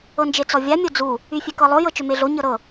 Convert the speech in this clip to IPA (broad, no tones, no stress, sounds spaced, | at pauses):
ɤ n d͡ʒ e t͡s ɔ vʲ a mʲ o d͡z u | y fʲ e k ɤ lˠ o j ɤ t͡ʃ ø m e ɮ o ɲ ɤ ɾ ɤ